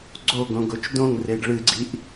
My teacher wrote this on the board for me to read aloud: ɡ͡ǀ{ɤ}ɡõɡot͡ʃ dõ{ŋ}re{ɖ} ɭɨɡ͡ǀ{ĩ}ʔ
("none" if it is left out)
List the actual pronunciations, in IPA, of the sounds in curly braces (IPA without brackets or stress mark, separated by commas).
o, ŋ, ɖ, i